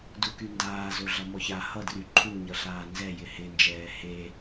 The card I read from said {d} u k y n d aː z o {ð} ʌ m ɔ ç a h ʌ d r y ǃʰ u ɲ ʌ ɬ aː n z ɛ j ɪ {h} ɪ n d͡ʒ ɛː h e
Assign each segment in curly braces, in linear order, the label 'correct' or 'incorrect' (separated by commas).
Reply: correct, incorrect, correct